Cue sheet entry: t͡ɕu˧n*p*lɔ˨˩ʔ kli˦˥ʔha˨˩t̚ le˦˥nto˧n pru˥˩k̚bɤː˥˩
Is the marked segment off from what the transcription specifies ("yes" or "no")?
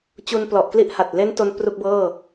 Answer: no